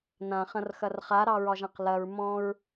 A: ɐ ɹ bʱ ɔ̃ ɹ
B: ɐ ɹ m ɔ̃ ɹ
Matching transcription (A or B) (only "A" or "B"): B